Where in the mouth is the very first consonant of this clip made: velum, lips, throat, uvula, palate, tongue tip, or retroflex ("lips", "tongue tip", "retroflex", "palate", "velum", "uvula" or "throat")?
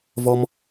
lips